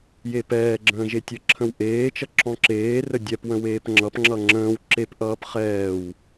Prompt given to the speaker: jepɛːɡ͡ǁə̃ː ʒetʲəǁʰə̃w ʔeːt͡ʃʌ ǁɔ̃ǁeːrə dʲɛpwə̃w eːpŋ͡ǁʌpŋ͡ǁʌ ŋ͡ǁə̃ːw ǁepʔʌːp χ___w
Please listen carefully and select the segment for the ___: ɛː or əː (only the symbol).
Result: ɛː